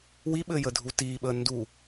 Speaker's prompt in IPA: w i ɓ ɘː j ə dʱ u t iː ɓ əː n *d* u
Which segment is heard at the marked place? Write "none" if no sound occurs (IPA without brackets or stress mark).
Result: d